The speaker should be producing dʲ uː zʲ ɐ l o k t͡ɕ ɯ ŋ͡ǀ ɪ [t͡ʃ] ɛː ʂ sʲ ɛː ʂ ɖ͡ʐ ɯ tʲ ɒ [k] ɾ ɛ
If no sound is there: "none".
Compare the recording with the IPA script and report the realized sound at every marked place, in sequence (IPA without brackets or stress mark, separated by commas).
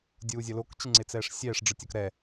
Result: t͡s, k